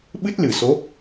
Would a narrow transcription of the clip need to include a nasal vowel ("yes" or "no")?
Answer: no